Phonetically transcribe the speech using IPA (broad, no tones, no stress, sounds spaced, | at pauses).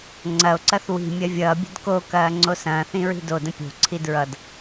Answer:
ŋ͡ǀ ɐ o̯ ǀ ɐ θ w i̤ mʲ ɐ vʲ ʌː bʲ ə̤ d k o k ɐː ŋ͡ǀ o s ɐ̃ː θ ĩ ɹ i̤ d o d ə̃ pʲ o̤ ǀʰ i d ɹ ʌ d